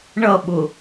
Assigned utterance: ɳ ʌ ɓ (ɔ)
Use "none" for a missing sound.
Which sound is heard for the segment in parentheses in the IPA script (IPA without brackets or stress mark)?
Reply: ʊ